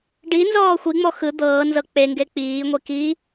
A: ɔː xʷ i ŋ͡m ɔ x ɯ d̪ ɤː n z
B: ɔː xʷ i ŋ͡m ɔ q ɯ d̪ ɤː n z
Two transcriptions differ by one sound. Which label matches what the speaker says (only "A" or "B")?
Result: A